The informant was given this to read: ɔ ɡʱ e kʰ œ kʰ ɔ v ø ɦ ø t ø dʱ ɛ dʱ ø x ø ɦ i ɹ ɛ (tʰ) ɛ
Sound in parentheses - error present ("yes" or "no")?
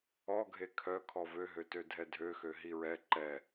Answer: yes